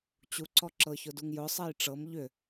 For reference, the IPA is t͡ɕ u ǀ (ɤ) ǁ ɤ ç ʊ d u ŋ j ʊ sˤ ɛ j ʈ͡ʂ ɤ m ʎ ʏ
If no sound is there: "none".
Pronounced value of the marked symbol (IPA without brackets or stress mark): ɔ